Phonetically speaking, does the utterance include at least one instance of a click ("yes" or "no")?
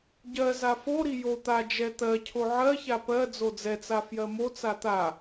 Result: no